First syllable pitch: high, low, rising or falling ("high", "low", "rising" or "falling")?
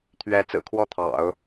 rising